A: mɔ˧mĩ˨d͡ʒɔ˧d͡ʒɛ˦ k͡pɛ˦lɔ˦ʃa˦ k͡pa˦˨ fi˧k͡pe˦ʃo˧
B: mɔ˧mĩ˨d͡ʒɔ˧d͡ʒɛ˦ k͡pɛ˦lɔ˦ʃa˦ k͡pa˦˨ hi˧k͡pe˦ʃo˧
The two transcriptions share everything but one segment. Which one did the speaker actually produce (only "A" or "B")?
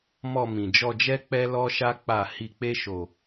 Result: B